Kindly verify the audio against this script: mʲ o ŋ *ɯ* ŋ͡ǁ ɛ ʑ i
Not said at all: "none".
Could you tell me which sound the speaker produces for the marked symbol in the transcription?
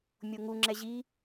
u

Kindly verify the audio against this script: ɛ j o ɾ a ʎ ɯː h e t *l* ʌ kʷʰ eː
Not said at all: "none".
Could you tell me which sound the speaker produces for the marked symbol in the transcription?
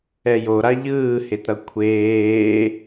ɾ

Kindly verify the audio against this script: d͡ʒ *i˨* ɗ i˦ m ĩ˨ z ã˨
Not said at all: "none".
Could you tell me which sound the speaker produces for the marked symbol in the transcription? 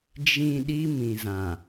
ĩ˨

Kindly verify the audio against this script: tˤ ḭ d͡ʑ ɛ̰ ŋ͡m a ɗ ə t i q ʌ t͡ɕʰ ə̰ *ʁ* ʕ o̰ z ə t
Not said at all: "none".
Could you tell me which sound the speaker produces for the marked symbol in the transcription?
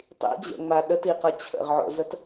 ʁ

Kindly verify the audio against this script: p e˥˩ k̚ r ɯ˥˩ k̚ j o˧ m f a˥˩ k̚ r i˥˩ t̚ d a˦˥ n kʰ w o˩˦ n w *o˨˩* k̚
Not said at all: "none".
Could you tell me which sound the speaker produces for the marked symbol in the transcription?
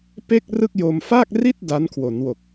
o˨˩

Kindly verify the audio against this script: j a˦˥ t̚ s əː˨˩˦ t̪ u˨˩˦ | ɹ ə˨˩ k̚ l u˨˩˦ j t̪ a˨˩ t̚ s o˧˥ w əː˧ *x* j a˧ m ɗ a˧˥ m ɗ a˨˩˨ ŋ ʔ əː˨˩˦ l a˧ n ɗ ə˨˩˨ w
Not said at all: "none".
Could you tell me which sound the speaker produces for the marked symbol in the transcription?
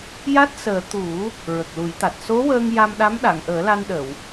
ŋ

